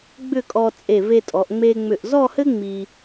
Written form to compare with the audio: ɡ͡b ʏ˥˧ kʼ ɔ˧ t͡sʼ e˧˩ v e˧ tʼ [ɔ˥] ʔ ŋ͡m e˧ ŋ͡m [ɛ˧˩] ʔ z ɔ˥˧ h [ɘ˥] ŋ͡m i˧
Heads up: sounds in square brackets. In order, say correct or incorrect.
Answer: incorrect: ɔ˩˧, incorrect: ʏ˧˩, correct

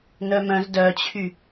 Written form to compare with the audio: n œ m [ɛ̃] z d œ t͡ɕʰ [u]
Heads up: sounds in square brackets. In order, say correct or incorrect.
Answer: incorrect: œ̃, incorrect: y

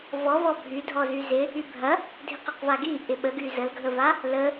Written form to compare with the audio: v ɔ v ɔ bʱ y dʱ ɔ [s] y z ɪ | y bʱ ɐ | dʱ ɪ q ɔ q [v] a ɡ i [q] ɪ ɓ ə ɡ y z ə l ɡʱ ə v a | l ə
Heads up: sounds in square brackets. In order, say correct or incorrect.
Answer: incorrect: z, correct, incorrect: ʔ

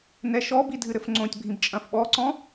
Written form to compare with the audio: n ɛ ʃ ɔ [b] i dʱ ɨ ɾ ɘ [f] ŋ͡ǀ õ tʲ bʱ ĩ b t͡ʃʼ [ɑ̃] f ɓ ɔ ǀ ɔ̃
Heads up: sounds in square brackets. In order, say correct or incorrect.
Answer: correct, correct, incorrect: ɐ̃

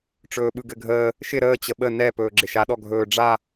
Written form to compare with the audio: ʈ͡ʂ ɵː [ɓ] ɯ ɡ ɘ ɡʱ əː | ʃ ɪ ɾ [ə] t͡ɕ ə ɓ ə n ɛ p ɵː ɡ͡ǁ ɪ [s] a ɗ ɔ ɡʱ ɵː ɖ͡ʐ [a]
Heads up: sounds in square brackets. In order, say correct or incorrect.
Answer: correct, incorrect: əː, incorrect: ʃ, correct

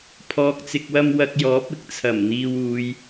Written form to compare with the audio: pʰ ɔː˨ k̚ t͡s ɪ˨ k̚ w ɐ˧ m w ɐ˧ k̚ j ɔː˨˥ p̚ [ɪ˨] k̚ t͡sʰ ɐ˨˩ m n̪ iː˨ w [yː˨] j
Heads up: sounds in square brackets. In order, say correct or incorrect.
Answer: incorrect: ɪ˥, incorrect: uː˨

